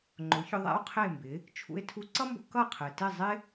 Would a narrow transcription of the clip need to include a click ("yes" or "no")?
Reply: yes